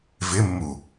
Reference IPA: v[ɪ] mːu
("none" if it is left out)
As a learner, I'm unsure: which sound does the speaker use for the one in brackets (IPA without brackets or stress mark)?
ɪ